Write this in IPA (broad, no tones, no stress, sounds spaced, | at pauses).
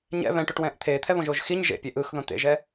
ɲ ɛ̰ β ɛ̃ ʈ o ʈ w ɛ̃ː ʔ t̪ʰ eː t̪ʰ ɛ β õ ʒ o ʒ x i ɲ ʒ ḛ pʲ e ʔ ɯ x ð õ t̪ ḛ ʒ ɛ